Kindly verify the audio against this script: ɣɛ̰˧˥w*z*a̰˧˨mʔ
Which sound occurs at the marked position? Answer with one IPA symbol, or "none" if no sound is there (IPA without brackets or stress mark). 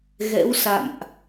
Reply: s